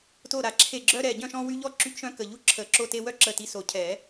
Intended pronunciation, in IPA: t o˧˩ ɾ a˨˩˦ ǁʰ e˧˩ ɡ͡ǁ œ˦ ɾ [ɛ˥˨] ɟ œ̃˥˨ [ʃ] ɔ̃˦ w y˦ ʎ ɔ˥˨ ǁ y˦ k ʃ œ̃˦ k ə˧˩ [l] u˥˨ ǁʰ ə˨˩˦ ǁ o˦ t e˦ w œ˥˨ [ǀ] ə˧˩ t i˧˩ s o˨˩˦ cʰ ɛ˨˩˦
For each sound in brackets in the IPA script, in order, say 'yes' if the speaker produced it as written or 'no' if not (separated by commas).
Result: no, yes, no, no